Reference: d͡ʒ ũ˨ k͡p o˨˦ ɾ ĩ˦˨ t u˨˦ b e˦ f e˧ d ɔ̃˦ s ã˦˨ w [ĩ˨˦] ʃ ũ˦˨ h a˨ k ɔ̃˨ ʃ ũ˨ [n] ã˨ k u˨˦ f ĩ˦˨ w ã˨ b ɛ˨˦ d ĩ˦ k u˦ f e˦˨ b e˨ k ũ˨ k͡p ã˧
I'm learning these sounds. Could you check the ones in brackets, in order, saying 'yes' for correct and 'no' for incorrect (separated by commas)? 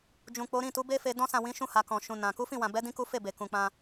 yes, yes